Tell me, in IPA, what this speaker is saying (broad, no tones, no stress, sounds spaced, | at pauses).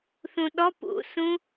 θ ũ ɗ ɔ p ṵ s ũ